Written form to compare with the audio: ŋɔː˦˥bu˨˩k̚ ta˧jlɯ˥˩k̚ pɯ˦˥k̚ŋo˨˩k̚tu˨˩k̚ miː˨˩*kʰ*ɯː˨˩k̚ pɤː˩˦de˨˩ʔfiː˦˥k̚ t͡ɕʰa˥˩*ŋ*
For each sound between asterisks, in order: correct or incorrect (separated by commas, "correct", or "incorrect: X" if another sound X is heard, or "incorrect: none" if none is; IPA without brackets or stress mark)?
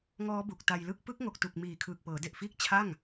correct, correct